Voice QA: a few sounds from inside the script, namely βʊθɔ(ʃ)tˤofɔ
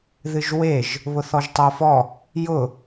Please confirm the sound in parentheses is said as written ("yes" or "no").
no